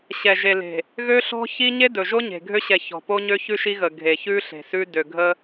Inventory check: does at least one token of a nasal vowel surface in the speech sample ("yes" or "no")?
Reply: no